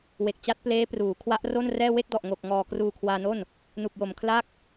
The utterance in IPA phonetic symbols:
we˨˩k̚ t͡ɕa˦˥t̚pleː˦˥pruː˩˦ kʰwa˦˥ʔro˥˩nrɛː˥˩ we˥˩k̚dɔ˨˩ʔŋo˨˩k̚ŋɔː˨˩ kruː˧kʰwaː˧no˥˩n | nu˨˩k̚jo˨˩m kʰla˥˩k̚

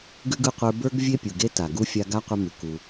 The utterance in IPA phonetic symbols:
ɡʉ˥ɡɯ˦qʷə˞˦ bə˞˥ɡ vʲe˥pʲu˨ɡe˥ ta˨ɡu˥ fʲa˦ɡa˥qʷʌ˦mʉ˨ ku˨

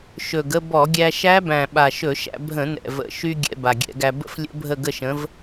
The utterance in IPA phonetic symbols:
ʃɵ˨˩ɡə˥˧ bɔ˧˩˧ɡʲæ˧ʃæ˦˥bæ̃˨˩ ɓa˨˩ʃɵ˧˩˧ʃæ̰˧ bʱə̃˧˩˧nɛ̰˨˩ və̰˨˩ʃy˧ ɡʲɛ̰˧ba˨˩ɡʲɛ̰˧˩˧ɡæ˧ bə̰˥˧flʲə̰˦˥ bʱə˥˧ɡə˥˧ʃə̃˨˥v

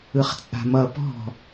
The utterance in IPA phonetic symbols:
ɯχt͡sʼa̤mʌ pɔ̤

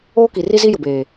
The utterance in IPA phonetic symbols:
oː˦ki˨ri˦zi˦ jʊ˨beː˨

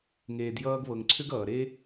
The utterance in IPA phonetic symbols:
ŋeː˨djʌː˧ɡβɤ˨ŋǀʰʏ˦ɡ ʌː˨ɾe˦

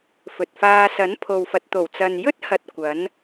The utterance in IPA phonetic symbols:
fɵ˨t̚faː˧ sɐ˨˥npʰo˨wfɐ˨t̚t̪o˨˩w t͡sɐ˨njɵ˥t̚hɐ˨t̚ kʷɐ˨˥n

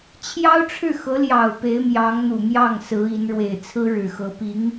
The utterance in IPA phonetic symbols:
t͡ɕʰjɑ˥ʊ̯ʈ͡ʂʰɻ̩˥˩xɤ˧˥ljɑ˨˩ʊ̯ pe˧˥ɪ̯mjɑ˧˥ŋn̪u˨˩mjɑ˥˩ŋ sɹ̩˧˥i˧˥n ɻwe˨˩ɪ̯t͡sʰɹ̩˥ ɻɻ̩˨˩xɤ˧˥ pi˧˥ŋ

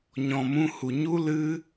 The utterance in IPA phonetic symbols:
ɲɔ̃˨mũ˧hu˨ɲu˦ lɨ˦

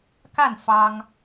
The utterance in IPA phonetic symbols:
ka˥˩n fɑ˥ŋ

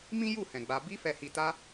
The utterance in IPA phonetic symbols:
mĩ˦ju˦˨hɛ̃˨ ɡ͡ba˧ bi˧fɛ˨hi˨ta˧

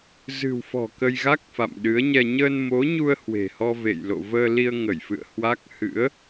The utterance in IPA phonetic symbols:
zɨ̤˨˩wfɔ̤˨˩ kə˧jɣa˦˥k̚fa̰˧˨m ɗɨ˨˦ə̯ɲɛ˧ ɲəː˧nmo˨˦ɲu˧ə̯ hwe̤˨˩hɔ˧ vḛ˧˨jlo̰˧˨vəː˧li˧ə̯ ŋə˧˩jfɨ̰˧˨ə̯ hwa˦˥k̚ hɨ̰˧˥ə̯

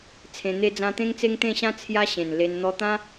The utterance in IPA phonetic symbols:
t͡sʰẽ˧n̪e˦d͡zã˦ t̪ẽ˦ŋt͡se˦ŋt̪ẽ˥˧ɕã˦ t͡sʰja˦ɕẽ˨˩nle˧n n̪ɔ˧t̪ã˦

